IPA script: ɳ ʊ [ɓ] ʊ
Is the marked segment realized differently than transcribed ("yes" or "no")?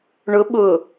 no